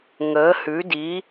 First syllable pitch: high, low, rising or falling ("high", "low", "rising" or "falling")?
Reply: rising